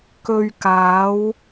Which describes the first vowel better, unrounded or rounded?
rounded